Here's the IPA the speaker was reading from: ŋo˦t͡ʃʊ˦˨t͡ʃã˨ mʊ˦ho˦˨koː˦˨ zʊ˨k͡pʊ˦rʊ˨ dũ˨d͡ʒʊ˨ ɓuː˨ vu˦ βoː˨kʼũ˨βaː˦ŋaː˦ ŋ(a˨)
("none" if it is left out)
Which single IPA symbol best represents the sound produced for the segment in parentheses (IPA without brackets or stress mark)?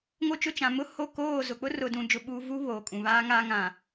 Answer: ã˨